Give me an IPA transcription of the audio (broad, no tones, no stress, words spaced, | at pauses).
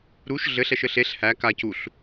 ɾuʃ ɮɘɬ ɛʃɘɬeɬ hæ ka cuɬ